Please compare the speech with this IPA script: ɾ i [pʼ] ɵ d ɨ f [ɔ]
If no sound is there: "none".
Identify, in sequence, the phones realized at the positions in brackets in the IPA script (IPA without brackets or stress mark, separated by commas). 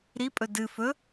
pʼ, ɵ